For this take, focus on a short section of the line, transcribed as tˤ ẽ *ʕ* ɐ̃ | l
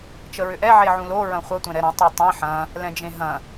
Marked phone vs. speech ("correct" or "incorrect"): incorrect